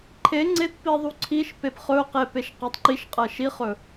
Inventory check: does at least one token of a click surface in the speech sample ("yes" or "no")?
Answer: yes